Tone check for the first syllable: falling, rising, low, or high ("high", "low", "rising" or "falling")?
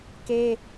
high